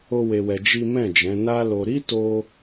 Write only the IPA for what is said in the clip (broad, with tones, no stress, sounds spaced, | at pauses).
o˦ w e˧ w ɛ˧ d͡ʒ i˦ m ɛ̃˦˨ d͡ʒ ɛ̃˨˦ n a˦ l o˧ ɾ i˦ t o˧